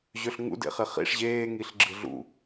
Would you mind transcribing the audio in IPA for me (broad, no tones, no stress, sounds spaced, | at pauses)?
ʑ ø ɬ ŋ ṵ d ḛ χ e χ ḭ ʂ ʑ eː ŋ i ɬ ɡ͡ǁ ɯ ɮ ṵ